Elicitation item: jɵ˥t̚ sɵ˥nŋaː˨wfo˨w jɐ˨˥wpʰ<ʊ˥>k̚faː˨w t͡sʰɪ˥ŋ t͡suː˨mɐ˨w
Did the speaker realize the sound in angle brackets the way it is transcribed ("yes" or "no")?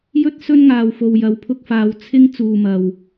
no